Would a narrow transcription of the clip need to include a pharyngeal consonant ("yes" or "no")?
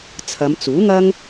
no